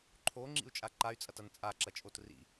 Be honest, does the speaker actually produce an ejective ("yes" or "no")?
yes